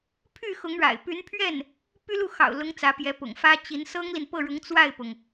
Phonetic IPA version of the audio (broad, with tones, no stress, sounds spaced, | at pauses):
pʰ y˥˩ x ʊ˧˥ ŋ ɻ a̰˨˩ ɪ̯ p y˧˥ n pʰ ɥ ɛ˥˩ n | p y˥ l u˥˩ x ɑ̰˨˩ ʊ̯ l ʊ˧˥ ŋ t͡s ä˧˥ p j ɛ˧˥ p ʊ̰˨˩ ŋ f ä˥ t͡ɕ i˧˥ n s ɤ˥ ŋ l i˨ n p ɤ˥˩ ɻ ʊ˧˥ ŋ t͡s w a˥˩ ɪ̯ p ʊ˩ ŋ